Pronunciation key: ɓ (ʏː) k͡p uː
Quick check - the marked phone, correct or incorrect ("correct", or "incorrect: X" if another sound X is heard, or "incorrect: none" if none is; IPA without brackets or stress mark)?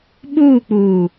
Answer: incorrect: uː